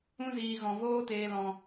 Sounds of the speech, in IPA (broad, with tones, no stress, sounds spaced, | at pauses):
ũ˧ z iː˨ ɣ ɔ̃˨ v oː˦ t eː˧ l ɔ̃˧